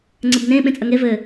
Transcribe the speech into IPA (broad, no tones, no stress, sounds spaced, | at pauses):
ŋ͡ǀ ɘ b n ẽ ɓ ẽ t͡sʼ ɐ ŋ e v ɘ